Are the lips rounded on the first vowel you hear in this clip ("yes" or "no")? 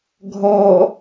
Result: yes